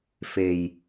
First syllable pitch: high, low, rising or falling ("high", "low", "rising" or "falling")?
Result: low